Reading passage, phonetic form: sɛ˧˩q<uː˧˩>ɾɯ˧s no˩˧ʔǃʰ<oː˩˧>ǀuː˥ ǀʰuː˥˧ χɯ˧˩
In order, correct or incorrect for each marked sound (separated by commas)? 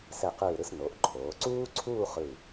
incorrect, correct